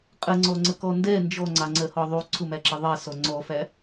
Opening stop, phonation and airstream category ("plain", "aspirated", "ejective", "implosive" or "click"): ejective